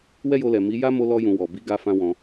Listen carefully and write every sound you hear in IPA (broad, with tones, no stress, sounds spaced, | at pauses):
w ɛ˦ j o˧ l ɛ˨ m i˨˦ j a˦ m o˧ l ɔ˧ j ũ˨ w ɔ˨ b i˨˦ ɡ a˧ f ã˧ w ɔ̃˧